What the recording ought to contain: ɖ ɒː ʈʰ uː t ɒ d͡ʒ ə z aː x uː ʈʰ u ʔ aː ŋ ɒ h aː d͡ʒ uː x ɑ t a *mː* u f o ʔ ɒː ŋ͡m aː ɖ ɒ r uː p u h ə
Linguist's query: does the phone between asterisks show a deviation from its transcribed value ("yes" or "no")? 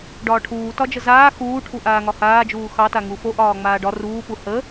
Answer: yes